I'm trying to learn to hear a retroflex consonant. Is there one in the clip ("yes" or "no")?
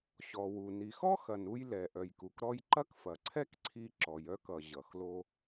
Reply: no